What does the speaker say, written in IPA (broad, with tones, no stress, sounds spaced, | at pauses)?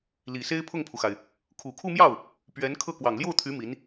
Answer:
l i˨˩ s e˥ ɪ̯ pʰ ʊ˥˩ ŋ pʰ u˩ x a˩ ɪ̯ | kʰ u˨˩ kʰ u˥˧ m j ɑ˥˩ ʊ̯ | p ɥ ɛ˧˥ n kʰ ɤ˥˩ k w ɑ˨˩ ŋ l j o˥˩ ʊ̯ t̪ʰ y˧˥ m i˧˥ n